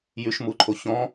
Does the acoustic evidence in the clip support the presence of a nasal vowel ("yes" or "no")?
yes